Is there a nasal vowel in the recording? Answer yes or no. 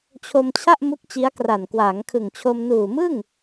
no